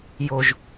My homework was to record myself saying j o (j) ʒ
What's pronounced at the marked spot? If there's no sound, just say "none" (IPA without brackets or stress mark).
none